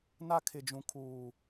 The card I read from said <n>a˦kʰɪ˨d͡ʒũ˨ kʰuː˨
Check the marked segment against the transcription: correct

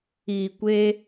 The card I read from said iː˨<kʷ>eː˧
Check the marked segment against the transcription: correct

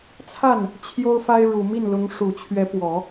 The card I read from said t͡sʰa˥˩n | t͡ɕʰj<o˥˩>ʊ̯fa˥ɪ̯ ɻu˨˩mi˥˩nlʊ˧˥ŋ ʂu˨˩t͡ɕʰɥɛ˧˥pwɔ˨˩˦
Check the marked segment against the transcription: incorrect: o˥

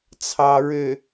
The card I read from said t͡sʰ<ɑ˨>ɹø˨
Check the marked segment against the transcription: correct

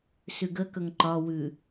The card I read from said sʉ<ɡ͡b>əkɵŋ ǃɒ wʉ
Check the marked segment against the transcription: incorrect: ɡ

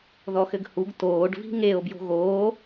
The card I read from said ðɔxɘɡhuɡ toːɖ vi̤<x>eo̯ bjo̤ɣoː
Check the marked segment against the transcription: incorrect: ŋ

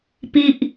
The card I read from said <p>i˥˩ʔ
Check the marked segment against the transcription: correct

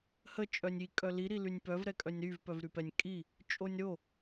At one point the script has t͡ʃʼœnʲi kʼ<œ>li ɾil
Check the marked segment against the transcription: correct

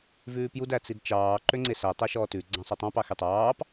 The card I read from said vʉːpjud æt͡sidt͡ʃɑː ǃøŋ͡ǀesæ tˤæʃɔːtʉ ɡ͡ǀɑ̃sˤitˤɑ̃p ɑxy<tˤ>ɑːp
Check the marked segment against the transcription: correct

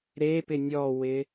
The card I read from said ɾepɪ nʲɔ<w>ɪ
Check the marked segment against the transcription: correct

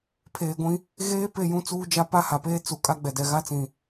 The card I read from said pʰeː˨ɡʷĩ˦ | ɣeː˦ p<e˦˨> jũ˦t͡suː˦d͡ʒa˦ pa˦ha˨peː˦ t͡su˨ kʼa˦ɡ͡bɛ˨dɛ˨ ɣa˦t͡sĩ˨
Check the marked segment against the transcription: correct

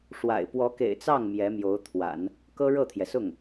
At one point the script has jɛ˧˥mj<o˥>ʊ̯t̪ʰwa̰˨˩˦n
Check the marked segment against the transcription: incorrect: o˧˥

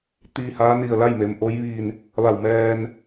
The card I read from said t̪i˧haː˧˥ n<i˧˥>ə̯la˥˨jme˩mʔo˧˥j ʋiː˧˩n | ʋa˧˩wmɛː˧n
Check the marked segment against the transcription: incorrect: i˧˩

